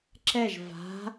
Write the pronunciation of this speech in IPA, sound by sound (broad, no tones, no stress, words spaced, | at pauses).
ǁɛʒ va̤